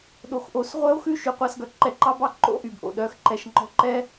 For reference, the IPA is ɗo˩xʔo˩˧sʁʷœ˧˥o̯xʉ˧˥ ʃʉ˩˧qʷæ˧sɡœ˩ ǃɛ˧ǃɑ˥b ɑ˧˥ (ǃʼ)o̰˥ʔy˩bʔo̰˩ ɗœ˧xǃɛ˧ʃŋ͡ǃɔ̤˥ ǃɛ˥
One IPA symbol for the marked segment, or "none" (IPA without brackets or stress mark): ǃ